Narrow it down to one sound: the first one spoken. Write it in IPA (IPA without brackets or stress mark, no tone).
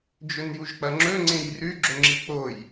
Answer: d͡ʒ